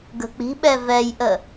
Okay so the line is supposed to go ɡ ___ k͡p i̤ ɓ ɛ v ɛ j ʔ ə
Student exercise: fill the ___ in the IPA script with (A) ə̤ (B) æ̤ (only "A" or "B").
A